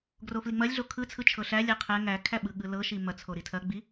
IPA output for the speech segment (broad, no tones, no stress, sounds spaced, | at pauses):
ɡ r o f l i ŋ͡m ɐ lʲ ɮ o kʰ ɯ t͡sʰ ɯ t͡ʃʰ ɤ ɬ æ lʲ æ qʰ ɛ ŋ æ kʰ æ ɓ ɯ ɠ ɯ l ɤ ʃ i m ɐ t͡sʰ o ɾ i tʰ ɐ ɡ͡b i